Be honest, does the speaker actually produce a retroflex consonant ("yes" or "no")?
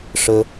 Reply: yes